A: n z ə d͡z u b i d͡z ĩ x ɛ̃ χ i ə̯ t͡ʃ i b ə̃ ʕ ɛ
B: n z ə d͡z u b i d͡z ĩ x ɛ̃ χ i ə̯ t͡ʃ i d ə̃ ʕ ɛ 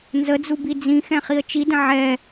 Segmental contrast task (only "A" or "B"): B